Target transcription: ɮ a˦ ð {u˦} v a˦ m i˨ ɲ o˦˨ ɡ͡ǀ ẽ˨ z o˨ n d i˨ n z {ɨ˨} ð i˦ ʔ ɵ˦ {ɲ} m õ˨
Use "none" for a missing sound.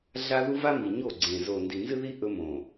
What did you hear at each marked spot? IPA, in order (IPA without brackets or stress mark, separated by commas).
u˦, ɨ˦, none